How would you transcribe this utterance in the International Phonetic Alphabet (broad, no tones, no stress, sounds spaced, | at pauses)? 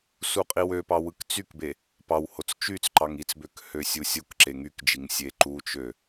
s u qʼ i w ø p ɑ w ɯ k t͡s y k b e | p ɑ w h o t͡s t͡ʃ y t͡s ǃ ɑ ŋ i t͡s b ø k h ø sʲ u sʲ o k ǁ e ŋ y k d͡ʒ i ŋ sʲ e ǃ u t͡ʃ ø